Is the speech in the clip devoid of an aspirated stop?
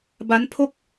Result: no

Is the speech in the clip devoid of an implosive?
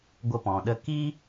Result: no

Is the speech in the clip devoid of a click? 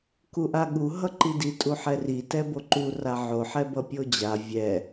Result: no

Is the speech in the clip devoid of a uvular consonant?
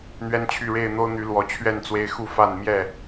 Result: yes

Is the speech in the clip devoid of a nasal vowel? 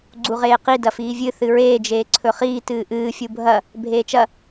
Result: yes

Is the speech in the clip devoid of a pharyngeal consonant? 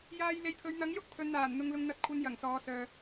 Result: yes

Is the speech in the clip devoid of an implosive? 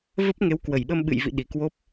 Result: no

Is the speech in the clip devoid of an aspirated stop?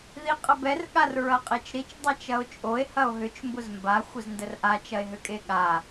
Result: yes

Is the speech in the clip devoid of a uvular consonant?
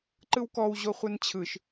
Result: no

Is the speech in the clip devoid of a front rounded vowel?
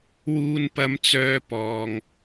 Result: no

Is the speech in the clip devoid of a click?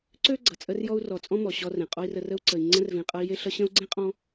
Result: no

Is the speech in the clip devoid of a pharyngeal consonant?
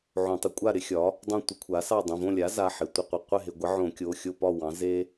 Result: no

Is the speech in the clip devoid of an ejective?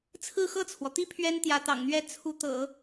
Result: yes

